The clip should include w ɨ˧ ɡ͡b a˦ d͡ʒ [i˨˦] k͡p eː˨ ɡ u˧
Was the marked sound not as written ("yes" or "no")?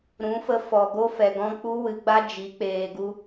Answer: no